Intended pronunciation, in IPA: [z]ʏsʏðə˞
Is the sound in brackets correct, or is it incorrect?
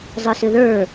incorrect